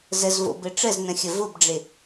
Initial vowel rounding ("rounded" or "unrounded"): unrounded